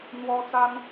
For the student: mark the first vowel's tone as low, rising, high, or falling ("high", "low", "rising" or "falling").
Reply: high